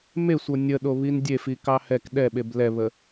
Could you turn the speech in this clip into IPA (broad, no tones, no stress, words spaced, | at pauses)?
mesʷɤ nʲəɗo βindʲefi kɑhɛk ɗɛɓeb lɛβə